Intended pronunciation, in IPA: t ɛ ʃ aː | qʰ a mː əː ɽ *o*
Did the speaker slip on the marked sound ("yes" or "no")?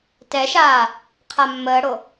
no